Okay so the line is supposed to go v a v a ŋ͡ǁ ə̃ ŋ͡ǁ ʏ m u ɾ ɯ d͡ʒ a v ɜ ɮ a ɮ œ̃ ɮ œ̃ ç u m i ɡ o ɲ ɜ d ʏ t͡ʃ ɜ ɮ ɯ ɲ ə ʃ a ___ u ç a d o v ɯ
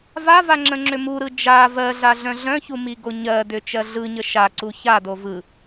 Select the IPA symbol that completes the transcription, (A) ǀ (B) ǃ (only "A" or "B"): A